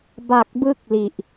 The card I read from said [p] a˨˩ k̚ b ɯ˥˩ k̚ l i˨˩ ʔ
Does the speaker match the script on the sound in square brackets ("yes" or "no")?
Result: no